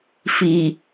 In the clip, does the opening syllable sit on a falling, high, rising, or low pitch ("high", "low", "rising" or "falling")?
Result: low